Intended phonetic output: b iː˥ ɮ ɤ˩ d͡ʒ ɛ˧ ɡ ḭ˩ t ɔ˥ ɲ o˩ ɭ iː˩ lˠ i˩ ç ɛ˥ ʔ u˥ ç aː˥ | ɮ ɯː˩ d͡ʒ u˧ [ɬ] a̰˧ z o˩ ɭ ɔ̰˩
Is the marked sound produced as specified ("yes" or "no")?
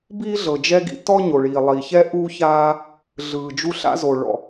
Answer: yes